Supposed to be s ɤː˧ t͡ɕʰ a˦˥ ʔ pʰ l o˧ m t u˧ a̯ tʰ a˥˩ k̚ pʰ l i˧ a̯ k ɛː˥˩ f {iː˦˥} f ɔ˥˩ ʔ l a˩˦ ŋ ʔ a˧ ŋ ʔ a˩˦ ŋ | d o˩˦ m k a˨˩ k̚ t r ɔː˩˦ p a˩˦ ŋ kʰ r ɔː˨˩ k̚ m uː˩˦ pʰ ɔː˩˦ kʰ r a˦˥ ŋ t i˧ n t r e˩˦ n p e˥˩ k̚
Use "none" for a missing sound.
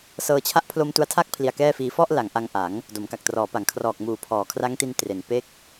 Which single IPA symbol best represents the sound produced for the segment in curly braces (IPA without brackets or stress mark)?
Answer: iː˦˥